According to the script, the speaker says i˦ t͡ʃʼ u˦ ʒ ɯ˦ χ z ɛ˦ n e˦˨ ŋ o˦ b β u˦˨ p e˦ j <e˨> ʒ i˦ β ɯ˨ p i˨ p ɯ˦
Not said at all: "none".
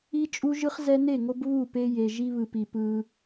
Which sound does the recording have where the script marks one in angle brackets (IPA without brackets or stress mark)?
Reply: e˨